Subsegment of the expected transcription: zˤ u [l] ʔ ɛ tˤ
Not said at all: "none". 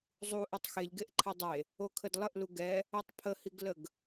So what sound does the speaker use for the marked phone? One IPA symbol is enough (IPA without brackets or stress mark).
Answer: none